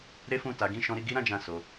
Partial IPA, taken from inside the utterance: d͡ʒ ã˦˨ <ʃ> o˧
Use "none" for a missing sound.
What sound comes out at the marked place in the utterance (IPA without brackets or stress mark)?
s